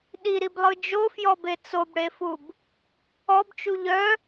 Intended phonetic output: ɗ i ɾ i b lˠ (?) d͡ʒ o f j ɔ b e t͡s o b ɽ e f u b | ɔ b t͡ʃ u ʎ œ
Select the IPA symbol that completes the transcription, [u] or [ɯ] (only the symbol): ɯ